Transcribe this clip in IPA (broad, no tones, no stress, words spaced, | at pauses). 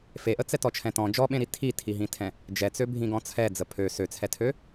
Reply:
feʔət͡sɛt ɔt͡ʃʰɛ̃tɔ̃ d͡ʒɔɓẽɾi tʰitʰiɦĩtʰɛ̃ | d͡ʒɛt͡søbʱĩɡɔ̃ t͡sʰɛd͡zə pʰø søt͡sʰɛtʰø